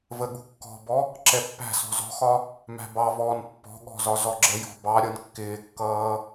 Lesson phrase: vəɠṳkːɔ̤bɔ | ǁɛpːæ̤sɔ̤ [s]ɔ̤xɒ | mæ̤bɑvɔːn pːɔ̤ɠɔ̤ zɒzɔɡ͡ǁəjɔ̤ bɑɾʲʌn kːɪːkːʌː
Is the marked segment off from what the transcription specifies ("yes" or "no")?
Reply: yes